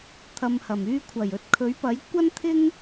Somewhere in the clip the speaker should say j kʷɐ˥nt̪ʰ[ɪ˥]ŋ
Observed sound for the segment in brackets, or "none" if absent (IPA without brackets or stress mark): ɪ˥